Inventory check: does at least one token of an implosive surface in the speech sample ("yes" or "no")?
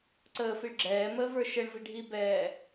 no